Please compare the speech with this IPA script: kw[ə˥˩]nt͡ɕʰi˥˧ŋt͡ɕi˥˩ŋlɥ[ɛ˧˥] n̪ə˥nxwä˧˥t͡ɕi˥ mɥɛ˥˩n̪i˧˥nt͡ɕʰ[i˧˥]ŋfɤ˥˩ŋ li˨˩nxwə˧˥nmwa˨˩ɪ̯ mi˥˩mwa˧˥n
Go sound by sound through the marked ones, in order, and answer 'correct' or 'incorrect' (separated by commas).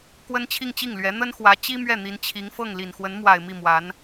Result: incorrect, correct, correct